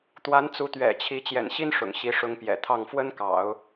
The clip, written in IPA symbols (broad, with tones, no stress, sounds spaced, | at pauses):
t̪ w a˧˥ n t͡s u˧˥ t̪ ɥ ɛ̰˨˩ t͡ɕʰ i˧˥ t͡ɕ j ɛ̰˨˩ n ɕ i˥ n ʂ ʊ̰˨˩ ŋ ɕ i˧˥ ʂ ʊ˧˥ ŋ p j ɛ̰˨˩ t̪ʰ ɑ˥˩ ŋ f w ə˥ n k ɑ̰˨˩˦ ʊ̯